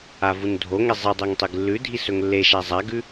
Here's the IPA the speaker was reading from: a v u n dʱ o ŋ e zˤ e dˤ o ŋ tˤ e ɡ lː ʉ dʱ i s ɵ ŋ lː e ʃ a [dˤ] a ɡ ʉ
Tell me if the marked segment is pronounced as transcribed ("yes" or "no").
no